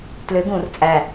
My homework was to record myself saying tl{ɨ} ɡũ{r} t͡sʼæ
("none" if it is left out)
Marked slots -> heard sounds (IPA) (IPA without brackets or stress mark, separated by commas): ʏ, r